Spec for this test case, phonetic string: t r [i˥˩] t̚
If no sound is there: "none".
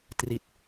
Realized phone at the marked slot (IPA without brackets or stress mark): i˨˩